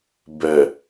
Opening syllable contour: low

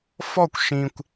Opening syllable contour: falling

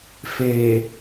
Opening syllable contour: low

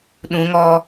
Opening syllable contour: rising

